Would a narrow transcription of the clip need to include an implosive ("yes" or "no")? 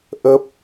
no